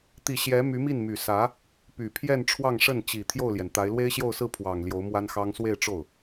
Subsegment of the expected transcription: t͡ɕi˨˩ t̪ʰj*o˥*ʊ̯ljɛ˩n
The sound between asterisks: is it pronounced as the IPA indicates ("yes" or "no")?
no